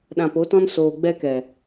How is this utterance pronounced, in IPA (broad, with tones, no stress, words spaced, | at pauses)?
ɗã˧po˨˦tɔ̃˦n soː˨ɡ͡bɛ˧kɛ˨